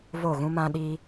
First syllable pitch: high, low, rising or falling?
falling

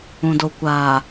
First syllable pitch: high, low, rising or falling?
low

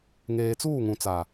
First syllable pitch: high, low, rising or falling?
low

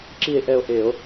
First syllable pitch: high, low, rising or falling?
falling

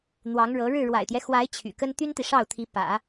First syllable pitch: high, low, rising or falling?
rising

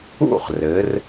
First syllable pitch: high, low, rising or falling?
falling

